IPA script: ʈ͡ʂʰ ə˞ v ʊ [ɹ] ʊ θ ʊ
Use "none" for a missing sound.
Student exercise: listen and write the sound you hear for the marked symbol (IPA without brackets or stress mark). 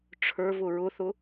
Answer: ɹ